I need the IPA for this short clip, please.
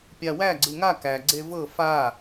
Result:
pʲ a w æ ɡ͡ǀ ɯ ŋ a k æ ɡ͡ǀ e v ɤ f a

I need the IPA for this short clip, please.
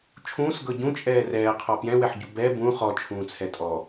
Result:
t͡ʃʰ ũː s ɡ ɤ ɟ ũ t͡ʃʼ ɛː r ɛː qʰ ɔ p j ɛ̃ w ɛ ħ ɟ u b ɛ b ũ χ ɔ t͡ʃʰ ũː t͡sʰ ɛ tʼ ɔ

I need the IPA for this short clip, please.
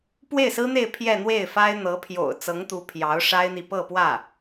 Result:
p w e˥˩ ɪ̯ s ɹ̩˥ n̪ e˥˧ ɪ̯ pʰ j ɛ˥˧ n̪ w e˥˩ ɪ̯ f a˥ ɪ̯ n̪ ɤ˧˥ pʰ j o̰˨˩ ʊ̯ t͡s ɤ˧˥ ŋ t̪ u˧˥ pʰ j ɑ˧˥ ʊ̯ ʂ a˥ ɪ̯ n̪ i˨ p ɤ˥˧ p w ä˥˩

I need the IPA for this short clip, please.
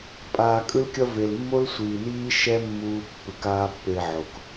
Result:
pʼ aː˨ kʼ ɯ˦ l kʲ ʌ˦ v e˨ l mː o˦ l sʷ iː˨ n iː˦ ʃ ɛ˦ mː uː˧ pː ɯ˨ k aː˦ pː e˧ ʕ o˨ k

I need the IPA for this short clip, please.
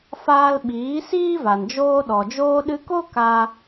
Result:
f aː˧ l ɓ iː˨˦ s iː˦ v a˨ n d͡ʒ oː˧ ɗ ɔ˨ d͡ʒ oː˧ ɗ ɨ˧ k o˦ k a˧

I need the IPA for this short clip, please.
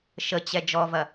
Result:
ʃ ə t͡ɕ ɛ d͡ʒ ɔ v ɐ

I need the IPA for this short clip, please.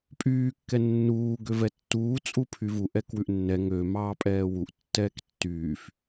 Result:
pʼ yː kː ɛ nː uː ɡ ø v ɛ tː uː t͡sʼ u pʰ y v u ʔ ɛ k w ʉ ʔ nː ɛ ŋ ø m ɑː pʼ ɛː w u ʔ tː ɛː k tː yː f

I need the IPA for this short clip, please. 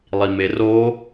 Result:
lˠ i m e r o

